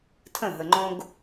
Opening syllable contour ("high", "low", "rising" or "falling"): falling